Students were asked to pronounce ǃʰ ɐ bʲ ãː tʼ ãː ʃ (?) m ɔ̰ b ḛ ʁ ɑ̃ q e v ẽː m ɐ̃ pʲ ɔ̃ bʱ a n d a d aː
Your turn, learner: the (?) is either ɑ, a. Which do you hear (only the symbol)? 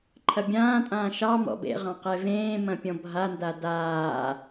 ɑ